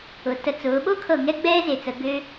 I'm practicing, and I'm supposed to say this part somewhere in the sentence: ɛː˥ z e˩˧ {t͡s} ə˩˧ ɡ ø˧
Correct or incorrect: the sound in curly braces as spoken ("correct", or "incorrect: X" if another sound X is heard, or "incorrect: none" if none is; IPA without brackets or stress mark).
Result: correct